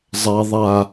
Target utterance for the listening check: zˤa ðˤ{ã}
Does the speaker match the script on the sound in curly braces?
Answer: no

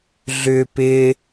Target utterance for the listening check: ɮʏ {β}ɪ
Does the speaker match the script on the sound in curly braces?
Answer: no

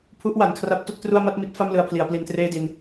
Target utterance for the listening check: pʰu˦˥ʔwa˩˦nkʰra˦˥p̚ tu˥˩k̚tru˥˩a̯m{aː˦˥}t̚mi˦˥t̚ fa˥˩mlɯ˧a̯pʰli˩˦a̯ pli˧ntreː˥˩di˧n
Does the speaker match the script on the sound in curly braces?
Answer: no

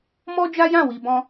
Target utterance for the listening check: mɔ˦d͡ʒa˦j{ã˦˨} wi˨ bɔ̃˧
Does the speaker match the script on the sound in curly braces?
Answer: yes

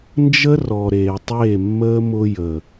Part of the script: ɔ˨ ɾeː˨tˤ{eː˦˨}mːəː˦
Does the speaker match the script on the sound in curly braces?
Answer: yes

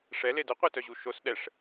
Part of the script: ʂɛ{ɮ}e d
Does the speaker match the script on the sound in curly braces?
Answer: no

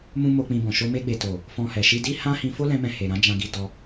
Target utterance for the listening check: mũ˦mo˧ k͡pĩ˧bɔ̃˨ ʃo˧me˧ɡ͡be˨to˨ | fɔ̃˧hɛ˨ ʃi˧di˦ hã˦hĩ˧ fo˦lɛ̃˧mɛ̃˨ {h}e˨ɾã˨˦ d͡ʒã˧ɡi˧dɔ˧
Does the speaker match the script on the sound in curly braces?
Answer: yes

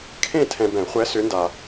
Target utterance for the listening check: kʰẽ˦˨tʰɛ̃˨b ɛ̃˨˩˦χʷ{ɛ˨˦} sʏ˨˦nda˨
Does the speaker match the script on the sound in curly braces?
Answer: yes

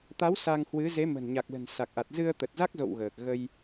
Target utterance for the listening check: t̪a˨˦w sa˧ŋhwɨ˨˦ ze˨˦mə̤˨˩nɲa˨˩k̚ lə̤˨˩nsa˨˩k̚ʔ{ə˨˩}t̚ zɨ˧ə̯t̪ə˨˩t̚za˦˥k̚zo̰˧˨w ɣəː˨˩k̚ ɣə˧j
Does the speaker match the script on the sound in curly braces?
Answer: no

